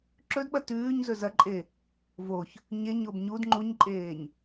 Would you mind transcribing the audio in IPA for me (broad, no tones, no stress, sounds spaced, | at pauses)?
ǁ ɵ d ɓ ɐ t ʉː ɲ z ɵ z ɐ ǃʼ e | v o ç | ɲ e ɲ o b ɲ u d ŋ͡ǃ u ɲ ǃʼ eː ɲ